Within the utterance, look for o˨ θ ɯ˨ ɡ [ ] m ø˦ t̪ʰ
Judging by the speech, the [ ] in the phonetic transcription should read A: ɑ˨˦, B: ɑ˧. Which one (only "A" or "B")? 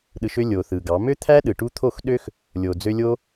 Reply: A